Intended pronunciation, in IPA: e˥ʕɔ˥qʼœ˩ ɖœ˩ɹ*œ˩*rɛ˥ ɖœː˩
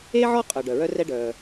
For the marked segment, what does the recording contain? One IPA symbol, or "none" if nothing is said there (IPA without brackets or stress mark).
œ˥